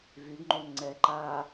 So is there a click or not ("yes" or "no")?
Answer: yes